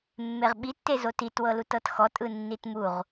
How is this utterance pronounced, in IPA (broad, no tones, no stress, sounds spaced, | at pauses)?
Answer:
mː e ʁ ɓ i tː e z o t i t w ɤ l u t ɤ t x ɔ tʼ ɯ nː i t m u ʁ